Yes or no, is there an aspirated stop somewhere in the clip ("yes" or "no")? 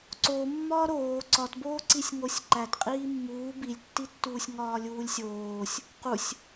no